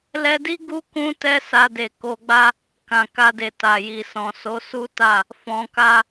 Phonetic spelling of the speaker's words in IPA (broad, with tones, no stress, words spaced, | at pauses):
lɛ˧di˦ ɡu˦kũ˦tɛ˦ sa˧ de˨ko˧ɡ͡ba˦ | kã˨ka˧de˨ ta˨ji˨sɔ̃˨ so˨˦su˦ta˦˨ | fɔ̃˧ka˦